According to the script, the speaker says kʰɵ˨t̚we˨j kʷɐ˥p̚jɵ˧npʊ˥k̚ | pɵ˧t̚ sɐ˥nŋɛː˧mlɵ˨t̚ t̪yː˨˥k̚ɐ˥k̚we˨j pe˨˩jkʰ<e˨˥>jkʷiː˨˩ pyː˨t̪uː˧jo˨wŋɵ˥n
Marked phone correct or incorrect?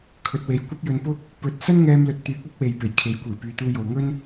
correct